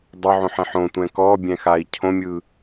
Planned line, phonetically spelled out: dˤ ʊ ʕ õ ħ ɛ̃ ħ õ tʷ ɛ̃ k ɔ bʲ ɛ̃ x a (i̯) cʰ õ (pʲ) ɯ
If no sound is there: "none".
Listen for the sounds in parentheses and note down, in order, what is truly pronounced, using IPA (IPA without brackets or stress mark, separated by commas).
i̯, mʲ